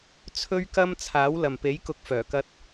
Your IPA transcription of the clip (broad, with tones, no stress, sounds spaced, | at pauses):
t͡sʰ ɵ˥ ɥ k ɐ˥ m t͡sʰ aː˨˥ w l ɐ˨ m p e˨˥ j k ʊ˨˥ k̚ f œː˨˩ k ɐ˧ t̚